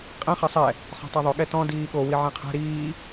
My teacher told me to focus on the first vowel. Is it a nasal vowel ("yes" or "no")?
yes